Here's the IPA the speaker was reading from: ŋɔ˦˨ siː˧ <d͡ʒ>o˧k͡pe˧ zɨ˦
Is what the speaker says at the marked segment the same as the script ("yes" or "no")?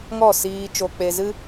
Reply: no